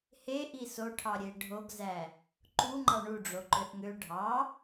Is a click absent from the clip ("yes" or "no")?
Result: no